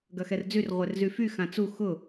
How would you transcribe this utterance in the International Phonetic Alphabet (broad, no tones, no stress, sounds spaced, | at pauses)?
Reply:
ɡ ɐ x ɛ r d͡z y r ʁʷ ɛ r z y f y x ã t͡s u x ʊ